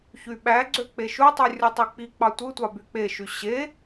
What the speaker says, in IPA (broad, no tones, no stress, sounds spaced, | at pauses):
ç y ɓ æ ɡ͡ǀ ø k͡p e ʃ u tˤ y rʲ o tˤ i k͡p i k͡p ɑ tʷ ɯ tʷ ɑ b y k͡p e ʃ y ɕ e